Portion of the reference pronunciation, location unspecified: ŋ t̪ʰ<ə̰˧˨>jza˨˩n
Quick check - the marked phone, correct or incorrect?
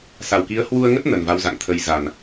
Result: incorrect: ə˧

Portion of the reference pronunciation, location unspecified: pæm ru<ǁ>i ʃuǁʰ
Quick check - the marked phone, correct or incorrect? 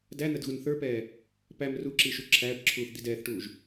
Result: correct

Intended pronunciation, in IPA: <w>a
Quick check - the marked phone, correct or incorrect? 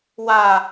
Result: correct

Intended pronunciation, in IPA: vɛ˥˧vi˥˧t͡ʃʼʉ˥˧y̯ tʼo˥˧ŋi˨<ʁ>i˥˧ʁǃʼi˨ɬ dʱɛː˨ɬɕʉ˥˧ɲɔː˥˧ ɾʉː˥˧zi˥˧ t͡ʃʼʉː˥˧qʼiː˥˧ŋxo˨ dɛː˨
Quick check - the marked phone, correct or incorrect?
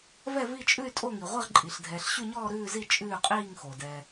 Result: incorrect: ʁʷ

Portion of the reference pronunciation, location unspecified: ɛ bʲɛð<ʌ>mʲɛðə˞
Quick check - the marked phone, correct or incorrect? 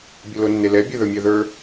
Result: incorrect: ə˞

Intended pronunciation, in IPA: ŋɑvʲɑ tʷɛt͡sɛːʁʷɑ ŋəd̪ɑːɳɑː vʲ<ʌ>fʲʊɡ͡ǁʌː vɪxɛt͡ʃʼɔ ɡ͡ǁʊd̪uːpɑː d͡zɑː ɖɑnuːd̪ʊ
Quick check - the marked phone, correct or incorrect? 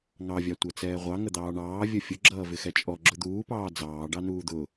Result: correct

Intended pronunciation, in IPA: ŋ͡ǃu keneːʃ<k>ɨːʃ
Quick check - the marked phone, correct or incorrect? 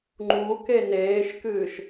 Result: correct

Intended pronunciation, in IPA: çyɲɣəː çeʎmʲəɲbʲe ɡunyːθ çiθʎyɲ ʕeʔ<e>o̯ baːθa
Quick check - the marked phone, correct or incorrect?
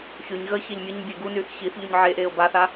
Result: incorrect: eː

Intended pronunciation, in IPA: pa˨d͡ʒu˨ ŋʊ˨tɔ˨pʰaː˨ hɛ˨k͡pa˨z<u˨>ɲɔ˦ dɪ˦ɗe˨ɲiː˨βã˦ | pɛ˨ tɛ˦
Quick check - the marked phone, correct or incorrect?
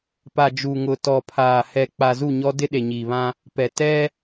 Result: incorrect: u˦˨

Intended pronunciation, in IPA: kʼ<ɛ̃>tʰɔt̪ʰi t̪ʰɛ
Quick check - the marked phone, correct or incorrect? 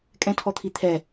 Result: correct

